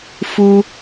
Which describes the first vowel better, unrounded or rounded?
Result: rounded